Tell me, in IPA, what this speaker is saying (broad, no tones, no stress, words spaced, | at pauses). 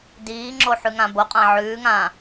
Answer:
diːŋ͡ǁo ħʉŋãboqʼã ʕʉːŋãː